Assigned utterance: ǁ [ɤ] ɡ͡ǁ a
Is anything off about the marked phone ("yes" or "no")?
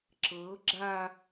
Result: no